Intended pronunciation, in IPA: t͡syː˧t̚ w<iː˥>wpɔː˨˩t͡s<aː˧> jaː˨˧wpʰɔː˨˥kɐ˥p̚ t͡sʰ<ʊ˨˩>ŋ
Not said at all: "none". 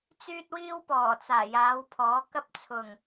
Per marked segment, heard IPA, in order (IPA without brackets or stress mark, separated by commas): iː˥, aː˨˩, ʊ˨˩